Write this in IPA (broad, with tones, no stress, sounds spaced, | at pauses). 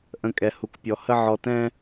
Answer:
ʔ ə̃˦ kʼ ɛ˧ h u˧ k pʲ ɔ˧ h ə˦ ʕ ɔ˧ t ɛ̃˦